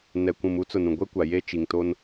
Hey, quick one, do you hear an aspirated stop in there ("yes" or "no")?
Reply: no